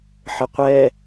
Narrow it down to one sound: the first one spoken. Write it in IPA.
ħ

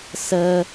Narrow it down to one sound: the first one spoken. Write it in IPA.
s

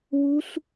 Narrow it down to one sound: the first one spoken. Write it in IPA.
w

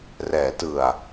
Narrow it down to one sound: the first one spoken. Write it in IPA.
r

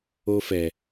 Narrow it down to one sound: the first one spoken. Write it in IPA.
o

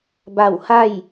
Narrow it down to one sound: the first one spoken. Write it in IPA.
b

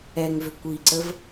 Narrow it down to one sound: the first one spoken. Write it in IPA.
ɛ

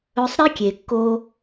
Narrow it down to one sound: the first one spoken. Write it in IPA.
ɵ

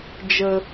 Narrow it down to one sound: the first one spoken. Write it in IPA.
d͡ʒ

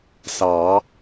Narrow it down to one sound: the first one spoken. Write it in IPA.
s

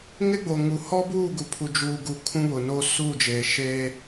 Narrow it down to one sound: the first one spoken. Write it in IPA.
ŋ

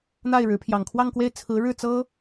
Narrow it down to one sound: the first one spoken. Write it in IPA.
n̪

